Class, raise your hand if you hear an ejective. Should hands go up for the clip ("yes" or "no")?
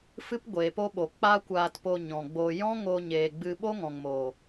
no